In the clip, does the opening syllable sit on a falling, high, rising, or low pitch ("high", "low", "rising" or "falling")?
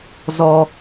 high